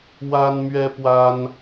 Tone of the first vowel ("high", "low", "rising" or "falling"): high